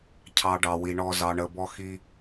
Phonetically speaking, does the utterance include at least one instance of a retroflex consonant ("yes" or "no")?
yes